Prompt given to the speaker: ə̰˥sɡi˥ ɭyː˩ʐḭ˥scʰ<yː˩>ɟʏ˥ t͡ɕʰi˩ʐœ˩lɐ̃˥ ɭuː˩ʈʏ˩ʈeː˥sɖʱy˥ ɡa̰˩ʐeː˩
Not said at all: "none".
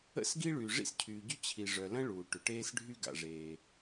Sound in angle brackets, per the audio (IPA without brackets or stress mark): yː˩